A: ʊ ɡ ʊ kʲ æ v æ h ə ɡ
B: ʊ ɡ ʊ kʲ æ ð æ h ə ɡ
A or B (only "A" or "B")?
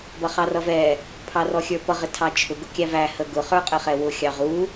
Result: A